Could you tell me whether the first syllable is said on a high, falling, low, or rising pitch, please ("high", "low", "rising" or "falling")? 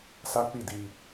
high